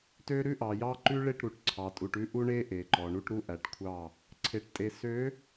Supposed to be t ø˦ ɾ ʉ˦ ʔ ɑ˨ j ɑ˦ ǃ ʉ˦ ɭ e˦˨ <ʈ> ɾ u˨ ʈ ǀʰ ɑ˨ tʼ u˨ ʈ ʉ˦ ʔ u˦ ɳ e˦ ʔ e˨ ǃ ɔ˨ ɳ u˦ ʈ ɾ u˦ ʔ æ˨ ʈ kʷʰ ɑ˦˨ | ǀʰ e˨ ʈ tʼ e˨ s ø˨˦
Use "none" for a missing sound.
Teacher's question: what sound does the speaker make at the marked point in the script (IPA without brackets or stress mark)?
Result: ʈ